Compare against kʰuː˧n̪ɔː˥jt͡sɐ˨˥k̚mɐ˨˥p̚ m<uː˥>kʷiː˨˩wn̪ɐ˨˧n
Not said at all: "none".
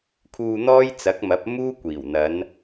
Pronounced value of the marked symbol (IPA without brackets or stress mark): uː˥